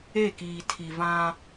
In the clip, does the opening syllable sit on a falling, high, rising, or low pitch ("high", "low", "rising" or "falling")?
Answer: falling